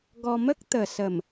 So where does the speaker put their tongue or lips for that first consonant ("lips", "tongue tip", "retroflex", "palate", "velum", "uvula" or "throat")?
velum